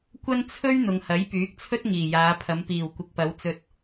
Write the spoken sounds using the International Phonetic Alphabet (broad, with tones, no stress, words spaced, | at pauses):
kʷɐ˥nt͡sʰɵ˥ɥ n̪ʊ˨ŋhɐ˨˥jpyː˨˥k̚t͡sʰɵ˥t̚ ŋiː˨˩jaː˨˧pʰɐ˨˧m piː˨˩wkʷɪ˨k̚pɐ˨˧w t͡sɵ˧t̚